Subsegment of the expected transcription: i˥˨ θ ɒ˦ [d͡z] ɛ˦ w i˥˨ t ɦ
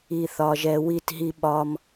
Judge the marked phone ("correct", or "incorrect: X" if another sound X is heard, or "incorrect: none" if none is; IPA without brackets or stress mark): incorrect: ʒ